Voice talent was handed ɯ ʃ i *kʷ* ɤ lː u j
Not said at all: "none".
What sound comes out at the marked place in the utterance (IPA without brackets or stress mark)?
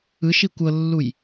kʷ